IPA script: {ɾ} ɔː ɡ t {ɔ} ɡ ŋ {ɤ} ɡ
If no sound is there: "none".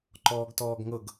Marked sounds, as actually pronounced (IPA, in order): ǃ, ɔː, ɤ

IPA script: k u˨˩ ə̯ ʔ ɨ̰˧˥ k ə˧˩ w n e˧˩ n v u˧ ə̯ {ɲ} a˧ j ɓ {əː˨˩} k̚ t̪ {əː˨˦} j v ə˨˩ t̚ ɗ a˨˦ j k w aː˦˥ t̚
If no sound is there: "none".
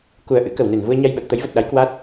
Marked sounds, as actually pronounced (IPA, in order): ɲ, əː˨˩, ə˨˦

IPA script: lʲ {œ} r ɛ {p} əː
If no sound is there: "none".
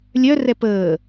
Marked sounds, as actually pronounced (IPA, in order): œ, p

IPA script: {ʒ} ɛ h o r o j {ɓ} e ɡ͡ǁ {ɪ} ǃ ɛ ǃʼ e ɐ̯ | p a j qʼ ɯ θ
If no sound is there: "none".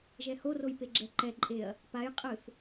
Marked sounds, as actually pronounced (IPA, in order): ʒ, p, ɛ

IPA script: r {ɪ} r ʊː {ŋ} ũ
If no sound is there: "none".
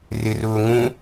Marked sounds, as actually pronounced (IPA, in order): ɪ, ŋ

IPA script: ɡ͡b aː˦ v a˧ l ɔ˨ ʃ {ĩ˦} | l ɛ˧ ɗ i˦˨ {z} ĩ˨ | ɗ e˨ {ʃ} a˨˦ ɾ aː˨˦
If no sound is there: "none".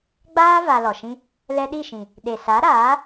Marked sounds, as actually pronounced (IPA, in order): ĩ˦, ʃ, s

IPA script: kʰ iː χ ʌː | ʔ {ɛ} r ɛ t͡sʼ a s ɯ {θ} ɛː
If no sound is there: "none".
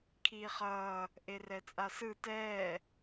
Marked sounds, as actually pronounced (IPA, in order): e, t

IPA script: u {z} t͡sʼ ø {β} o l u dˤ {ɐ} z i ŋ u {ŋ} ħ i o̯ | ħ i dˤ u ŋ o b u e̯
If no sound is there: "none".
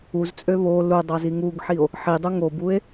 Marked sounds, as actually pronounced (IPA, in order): z, β, ɑ, ɡ

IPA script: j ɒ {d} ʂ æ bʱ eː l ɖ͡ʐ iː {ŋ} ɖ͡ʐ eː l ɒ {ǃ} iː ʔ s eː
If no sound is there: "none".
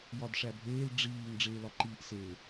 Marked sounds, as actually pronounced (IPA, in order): d, ŋ, ǃ

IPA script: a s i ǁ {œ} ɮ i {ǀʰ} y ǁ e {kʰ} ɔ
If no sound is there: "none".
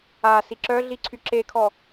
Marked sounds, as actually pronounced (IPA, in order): œ, ǀʰ, kʰ

